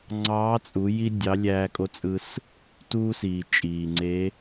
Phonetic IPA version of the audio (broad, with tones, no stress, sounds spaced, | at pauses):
ŋ͡ǀ ɑː˧˥ t͡sʼ u˩˧ j i˥ dʲ ɑ˧˥ lʲ æː˧ kʼ o˧˥ t͡sʼ ɯ˧ s | t uː˥ s iː˩ t͡ʃʼ iː˩ ŋ͡ǀ e˧˥